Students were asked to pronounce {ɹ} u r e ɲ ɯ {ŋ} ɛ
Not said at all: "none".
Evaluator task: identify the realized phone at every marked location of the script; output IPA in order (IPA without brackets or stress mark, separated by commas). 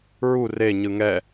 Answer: ɹ, ŋ